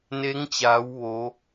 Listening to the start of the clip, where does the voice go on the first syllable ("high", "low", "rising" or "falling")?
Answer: rising